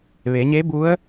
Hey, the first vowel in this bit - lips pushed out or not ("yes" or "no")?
no